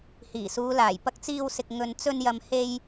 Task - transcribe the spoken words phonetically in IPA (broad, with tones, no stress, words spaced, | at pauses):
hiː˨˩suː˨˧laː˨˩j pɐ˧k̚t͡siː˧wsɪ˨k̚ ŋɵ˨n t͡sɵ˧njɐ˨mhe˧j